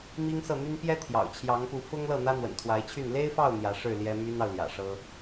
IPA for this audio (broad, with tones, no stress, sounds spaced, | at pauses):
m i˥ ŋ s ɤ˥˩ n̪ y˥ n p j ɛ˥ t̪ʰ j ɑ̰˨˩ ʊ̯ t͡ɕʰ j ɑ˧˥ ŋ p u˧˥ f ʊ˥ ŋ l ɤ˥˩ n̪ ä˥ n̪ w ə̰˨˩ n t̪ʰ w a˧˥ ɪ̯ t͡ɕʰ y˥˩ n l e˥ ɪ̯ f ɑ˥˩ ʊ̯ n̪ j ä˧˥ ʂ ɻ̩˥˩ l j ɛ˥ m y˥ n ɑ˨ ʊ̯ l j ä̰˨˩ ʂ ɤ˥